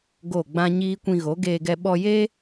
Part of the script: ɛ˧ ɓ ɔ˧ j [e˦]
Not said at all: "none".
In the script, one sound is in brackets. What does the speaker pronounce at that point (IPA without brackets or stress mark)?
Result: e˦